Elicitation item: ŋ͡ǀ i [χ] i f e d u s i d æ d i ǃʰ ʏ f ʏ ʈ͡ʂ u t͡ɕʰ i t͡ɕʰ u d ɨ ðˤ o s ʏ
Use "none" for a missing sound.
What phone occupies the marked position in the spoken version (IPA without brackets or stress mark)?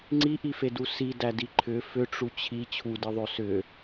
ʔ